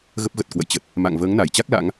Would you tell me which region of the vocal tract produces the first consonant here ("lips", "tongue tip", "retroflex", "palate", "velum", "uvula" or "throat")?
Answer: velum